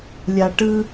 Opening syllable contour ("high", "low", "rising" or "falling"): low